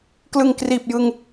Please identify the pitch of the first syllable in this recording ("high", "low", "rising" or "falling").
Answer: low